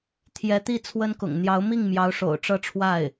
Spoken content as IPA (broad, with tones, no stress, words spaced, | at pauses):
t̪ʰjɛ˧˥t̪i˥˩ t͡sʰwə˥nkʊ̰˨˩ŋ n̪jɑ˧˥ʊ̯mi˥˩ŋmjɑ˧˥ʊ̯ ʂo̰˨˩ʊ̯ʈ͡ʂɤ˥˧ʈ͡ʂʰwa˥˩ɪ̯